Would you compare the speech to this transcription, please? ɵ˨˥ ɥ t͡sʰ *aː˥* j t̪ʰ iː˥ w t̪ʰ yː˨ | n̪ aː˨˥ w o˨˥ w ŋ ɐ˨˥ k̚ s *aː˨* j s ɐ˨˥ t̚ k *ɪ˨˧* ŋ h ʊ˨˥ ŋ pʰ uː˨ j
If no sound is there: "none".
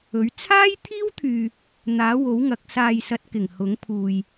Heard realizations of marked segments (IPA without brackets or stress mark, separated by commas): aː˥, aː˨, ɪ˨˩